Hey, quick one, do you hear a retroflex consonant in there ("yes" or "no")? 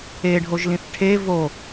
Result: yes